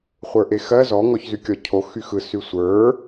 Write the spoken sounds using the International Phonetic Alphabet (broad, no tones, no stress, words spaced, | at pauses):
χʷə˞ʔexɜ zɔ ŋɔçzykʲɔ cʰo xyxɯ sysʷə˞